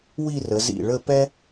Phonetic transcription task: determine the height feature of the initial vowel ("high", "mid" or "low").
high